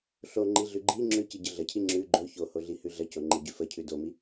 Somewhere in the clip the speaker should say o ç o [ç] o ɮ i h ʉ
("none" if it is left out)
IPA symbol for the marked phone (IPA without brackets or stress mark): h